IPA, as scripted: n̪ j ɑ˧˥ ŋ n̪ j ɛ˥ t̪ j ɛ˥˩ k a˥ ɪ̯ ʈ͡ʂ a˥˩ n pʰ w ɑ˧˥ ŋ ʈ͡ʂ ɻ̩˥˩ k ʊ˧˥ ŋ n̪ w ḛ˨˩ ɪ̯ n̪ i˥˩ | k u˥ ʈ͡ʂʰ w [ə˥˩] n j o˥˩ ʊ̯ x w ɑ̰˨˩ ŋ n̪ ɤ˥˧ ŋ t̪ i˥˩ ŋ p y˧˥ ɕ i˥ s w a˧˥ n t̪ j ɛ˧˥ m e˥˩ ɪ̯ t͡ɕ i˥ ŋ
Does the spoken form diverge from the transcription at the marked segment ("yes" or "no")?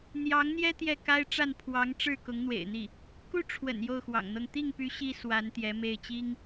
yes